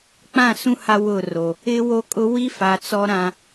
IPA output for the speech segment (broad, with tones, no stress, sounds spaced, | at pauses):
k͡p ã˦˨ s ũ˦ h a˦ w ʊ˦˨ r o˨ | ɪ˦ w o˦ kʼ ʊ˦ w i˦ f a˨ t͡s ɔ˦ ɾ ã˦